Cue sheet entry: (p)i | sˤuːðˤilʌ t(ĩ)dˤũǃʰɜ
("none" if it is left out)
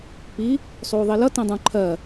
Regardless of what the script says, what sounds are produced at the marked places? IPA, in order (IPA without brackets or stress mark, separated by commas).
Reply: p, ĩ